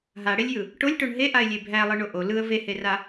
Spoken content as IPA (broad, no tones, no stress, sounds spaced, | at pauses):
ɦ a ɽ e lʲ j ɯ | ʈ o lʲ ʈ o ɳ ɦ e ʔ a ɪ̯ lʲ e bʱ æ lˠ ɯ ɳ o ʔ o l ɯ ə̯ v e h e r a